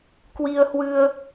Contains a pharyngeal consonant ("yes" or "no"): no